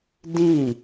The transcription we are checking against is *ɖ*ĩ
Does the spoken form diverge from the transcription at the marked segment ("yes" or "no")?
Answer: yes